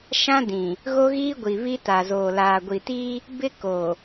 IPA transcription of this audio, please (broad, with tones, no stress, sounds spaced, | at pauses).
ʃ ã˦ d ĩ˨ | ɣ o˦ ɣ iː˦ ɡʷ i˨ β i˦ t a˨ z oː˨ l aː˨ ɡʷ i˨ t iː˦ | b ɪ˦ k oː˨